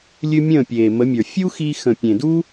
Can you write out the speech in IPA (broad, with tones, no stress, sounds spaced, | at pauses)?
lʲ ɨ˦ mʲ ə̃ː˦˨ pʲ eː˨ m ə˨˦ mʲ ə˞˨ fʲ u˦ x i˧ x ə̃˨ pʲ ẽ˨ d u˦